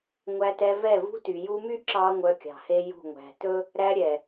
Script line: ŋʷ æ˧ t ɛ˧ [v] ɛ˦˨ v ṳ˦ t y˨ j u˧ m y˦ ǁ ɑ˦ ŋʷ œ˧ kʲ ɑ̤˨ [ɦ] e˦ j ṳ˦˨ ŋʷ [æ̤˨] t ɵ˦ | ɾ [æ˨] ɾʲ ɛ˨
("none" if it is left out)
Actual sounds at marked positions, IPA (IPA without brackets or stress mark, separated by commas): v, h, æ̤˨, æ˧